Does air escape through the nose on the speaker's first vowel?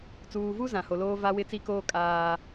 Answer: no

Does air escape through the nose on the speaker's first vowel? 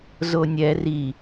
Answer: no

